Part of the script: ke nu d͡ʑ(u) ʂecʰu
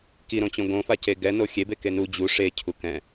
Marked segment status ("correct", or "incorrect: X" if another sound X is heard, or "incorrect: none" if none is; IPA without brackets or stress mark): correct